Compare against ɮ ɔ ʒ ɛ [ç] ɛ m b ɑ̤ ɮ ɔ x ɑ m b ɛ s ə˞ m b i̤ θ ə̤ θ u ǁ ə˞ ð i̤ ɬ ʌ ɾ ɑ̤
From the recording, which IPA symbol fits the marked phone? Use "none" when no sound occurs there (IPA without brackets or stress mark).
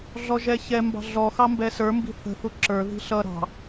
ç